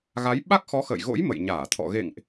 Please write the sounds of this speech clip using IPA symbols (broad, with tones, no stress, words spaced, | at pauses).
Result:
ɣa˨˦j ɓa˦˥k̚xɔ˨˦xə̰ː˧˨jɣo̰˧˥j mə̰˧˨jɲaː˧˩t̪ʰɔ̰˧˨ ɣḛ˧˨ŋʔ